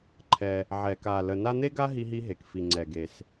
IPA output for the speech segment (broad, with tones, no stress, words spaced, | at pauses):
ǃʰɛ˨ | ʕɛ˩ka˩ lə˨ na˦n̪e˥ɡa˥ ɦi˦ɦi˦ɦe˩k fi˩ŋ͡ǀɛ˩ɡe˩s